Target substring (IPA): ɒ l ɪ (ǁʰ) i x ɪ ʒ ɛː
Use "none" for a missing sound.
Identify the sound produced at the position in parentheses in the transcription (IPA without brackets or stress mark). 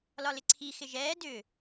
ǀʰ